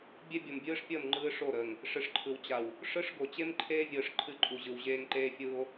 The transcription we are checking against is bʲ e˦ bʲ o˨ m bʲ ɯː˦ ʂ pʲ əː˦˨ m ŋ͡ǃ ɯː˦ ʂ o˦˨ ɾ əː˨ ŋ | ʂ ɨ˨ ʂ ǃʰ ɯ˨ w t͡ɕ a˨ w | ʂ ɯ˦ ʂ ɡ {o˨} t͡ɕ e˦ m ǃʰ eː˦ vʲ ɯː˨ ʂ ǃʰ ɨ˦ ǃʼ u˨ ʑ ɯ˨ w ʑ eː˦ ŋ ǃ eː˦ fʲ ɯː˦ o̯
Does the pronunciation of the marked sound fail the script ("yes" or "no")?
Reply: no